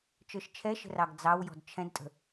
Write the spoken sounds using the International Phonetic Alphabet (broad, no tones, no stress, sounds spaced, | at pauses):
t͡ʃ ə˞ ʃ t͡ʃʰ ɛ ʃ ə̤ r ɑ ɡ d͡z ɑ w j ɔ̤ d t͡ʃʰ ɛ̃ d tʼ ə̤